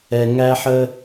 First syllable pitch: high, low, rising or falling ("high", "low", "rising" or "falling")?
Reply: low